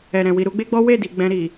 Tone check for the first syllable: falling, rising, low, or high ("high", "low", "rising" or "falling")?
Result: low